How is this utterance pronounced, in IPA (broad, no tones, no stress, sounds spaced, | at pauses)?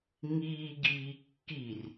ŋ iː ɡ iː kː i r